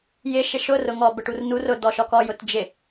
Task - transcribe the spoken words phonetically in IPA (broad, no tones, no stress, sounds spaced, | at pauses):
j ɪ ʃ ɪ ʃ ʊ r ʊ ŋ ɔ b ə ʈ u r n u r ʊ d ɔ ʃ ɔ k ɔ j ʊ t d͡ʒ ɪ